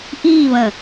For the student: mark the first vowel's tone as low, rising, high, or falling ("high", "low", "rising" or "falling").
falling